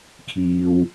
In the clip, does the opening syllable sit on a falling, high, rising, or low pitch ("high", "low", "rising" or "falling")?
low